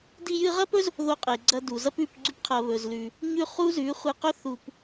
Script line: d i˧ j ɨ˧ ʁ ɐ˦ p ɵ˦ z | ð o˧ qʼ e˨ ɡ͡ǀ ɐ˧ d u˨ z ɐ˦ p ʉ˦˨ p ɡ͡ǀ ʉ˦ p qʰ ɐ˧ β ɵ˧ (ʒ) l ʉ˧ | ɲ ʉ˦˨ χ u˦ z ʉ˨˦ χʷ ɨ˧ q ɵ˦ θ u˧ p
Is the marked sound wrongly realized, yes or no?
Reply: yes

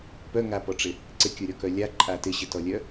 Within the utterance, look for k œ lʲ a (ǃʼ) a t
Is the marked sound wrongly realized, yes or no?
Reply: no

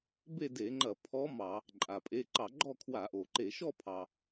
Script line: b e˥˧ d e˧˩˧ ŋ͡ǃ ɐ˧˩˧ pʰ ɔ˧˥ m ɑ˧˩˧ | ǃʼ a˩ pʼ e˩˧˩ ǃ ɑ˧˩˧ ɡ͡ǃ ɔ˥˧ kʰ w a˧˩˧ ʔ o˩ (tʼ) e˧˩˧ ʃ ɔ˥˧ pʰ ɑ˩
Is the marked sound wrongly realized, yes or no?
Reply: yes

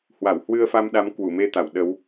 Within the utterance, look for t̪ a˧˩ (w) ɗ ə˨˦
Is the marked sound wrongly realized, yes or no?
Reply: no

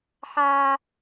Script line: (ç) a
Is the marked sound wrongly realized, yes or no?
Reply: yes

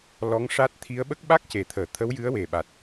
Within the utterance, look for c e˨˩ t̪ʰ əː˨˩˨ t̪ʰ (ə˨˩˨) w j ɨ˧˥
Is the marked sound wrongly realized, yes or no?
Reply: yes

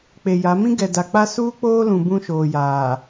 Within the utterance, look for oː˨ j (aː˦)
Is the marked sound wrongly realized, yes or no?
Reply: yes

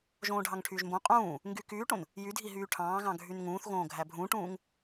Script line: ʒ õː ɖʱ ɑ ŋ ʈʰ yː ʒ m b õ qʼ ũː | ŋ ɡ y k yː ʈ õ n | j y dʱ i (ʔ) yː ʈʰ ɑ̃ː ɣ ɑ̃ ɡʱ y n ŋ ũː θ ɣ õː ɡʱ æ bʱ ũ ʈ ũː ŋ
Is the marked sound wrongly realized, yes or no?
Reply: yes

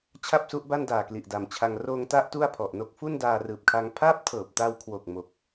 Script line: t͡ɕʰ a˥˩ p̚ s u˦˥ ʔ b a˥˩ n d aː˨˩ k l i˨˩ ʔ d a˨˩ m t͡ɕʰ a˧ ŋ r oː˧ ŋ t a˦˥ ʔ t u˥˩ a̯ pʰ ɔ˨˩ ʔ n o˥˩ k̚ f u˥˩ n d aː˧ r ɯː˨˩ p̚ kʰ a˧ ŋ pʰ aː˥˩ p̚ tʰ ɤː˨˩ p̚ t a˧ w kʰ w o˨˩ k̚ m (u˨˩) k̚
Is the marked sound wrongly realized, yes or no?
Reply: yes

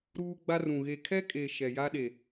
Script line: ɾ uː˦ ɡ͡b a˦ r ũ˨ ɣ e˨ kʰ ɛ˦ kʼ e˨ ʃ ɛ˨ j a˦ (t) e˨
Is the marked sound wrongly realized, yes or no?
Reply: yes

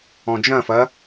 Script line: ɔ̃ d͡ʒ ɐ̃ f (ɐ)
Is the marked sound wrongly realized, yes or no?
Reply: no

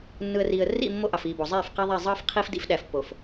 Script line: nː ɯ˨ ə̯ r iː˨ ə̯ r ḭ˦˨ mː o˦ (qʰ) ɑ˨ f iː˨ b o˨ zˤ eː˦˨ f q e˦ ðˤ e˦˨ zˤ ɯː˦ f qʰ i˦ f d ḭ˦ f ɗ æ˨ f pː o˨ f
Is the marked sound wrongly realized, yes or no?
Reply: yes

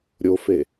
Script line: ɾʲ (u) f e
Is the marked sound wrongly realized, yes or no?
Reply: yes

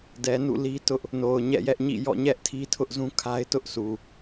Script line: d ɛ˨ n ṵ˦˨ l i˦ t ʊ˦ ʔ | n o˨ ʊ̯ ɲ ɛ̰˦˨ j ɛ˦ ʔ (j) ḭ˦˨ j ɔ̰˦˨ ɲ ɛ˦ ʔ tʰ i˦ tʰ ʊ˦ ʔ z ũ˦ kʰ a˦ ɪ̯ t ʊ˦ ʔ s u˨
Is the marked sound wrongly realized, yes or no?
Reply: yes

